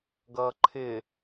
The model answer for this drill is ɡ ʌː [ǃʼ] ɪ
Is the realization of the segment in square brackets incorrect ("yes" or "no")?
yes